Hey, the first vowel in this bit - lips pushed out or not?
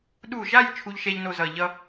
yes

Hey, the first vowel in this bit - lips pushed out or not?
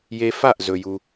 no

